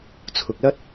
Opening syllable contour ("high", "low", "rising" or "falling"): low